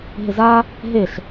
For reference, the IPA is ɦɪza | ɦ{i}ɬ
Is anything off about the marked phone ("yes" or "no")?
yes